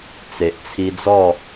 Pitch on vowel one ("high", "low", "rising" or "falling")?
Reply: low